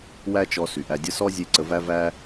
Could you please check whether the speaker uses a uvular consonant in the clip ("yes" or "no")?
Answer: no